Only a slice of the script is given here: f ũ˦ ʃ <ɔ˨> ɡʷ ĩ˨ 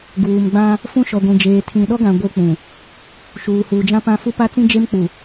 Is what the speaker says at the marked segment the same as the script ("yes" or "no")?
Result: yes